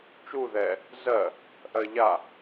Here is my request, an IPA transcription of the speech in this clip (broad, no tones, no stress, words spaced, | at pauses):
t͡ʃu ðɛ | zɜ | ʔɜʎa